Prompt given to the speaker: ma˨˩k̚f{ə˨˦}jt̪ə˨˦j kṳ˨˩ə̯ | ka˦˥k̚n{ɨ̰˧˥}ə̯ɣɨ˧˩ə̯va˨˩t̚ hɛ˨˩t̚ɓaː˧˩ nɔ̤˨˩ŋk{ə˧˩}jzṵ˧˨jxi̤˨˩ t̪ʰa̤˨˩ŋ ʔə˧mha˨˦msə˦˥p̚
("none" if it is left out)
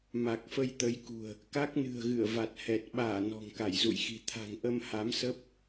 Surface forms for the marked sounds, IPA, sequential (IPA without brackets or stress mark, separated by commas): ə˧, ɨ̤˨˩, a˧˩